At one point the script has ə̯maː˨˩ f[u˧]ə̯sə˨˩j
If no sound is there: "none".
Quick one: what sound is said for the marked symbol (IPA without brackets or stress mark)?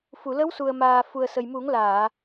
u˨˩